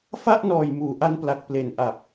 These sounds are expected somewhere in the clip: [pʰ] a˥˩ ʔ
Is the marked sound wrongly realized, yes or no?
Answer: yes